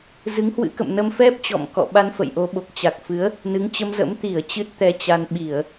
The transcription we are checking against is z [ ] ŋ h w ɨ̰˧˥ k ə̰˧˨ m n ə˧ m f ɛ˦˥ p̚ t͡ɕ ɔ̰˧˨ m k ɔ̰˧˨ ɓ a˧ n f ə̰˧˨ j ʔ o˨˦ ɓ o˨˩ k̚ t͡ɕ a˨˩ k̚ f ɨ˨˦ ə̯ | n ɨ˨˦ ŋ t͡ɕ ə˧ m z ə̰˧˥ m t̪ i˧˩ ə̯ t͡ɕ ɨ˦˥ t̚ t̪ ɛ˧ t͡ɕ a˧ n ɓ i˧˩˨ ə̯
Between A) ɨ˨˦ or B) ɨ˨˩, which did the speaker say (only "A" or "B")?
A